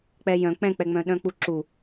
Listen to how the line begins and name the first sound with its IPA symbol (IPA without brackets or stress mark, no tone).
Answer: k͡p